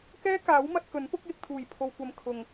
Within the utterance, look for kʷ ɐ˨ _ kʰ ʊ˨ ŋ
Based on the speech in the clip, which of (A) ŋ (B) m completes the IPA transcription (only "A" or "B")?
B